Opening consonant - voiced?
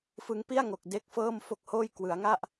no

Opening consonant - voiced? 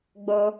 yes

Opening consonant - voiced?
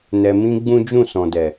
yes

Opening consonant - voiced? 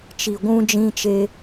no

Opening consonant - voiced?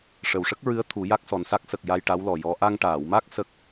no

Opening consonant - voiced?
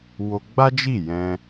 yes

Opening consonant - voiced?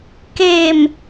no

